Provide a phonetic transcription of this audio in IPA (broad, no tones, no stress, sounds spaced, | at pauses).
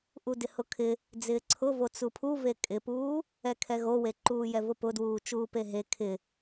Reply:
ʔ u d ɪ h ʊ kʰ ɪ | d͡z ɪː ǀʰ ʊ v o t͡s u pʰ u v e kʼ ɪ p uː | ɛ kʰ ɛ ɣ o w e ǃ uː j ɛ v ʊ p ʊ d w uː t͡ʃ uː p e ɦ e kʰ ɪ